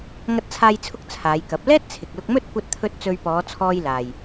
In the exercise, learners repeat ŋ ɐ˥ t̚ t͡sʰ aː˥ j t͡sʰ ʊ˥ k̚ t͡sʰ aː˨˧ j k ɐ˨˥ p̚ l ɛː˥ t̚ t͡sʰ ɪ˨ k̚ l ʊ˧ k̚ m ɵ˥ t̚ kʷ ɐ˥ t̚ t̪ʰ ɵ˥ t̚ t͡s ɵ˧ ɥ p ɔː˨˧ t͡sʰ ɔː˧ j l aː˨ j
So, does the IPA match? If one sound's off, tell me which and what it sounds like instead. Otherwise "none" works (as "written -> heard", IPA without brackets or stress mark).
none